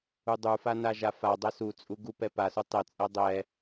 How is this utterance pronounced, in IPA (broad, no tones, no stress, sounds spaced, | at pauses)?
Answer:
u dˤ u f a n a ʒ a f a dˤ ɛ s u t͡sʼ u ɡ u p ɛ p a s u tˤ ɛ t͡sʼ ɛ dˤ ɛ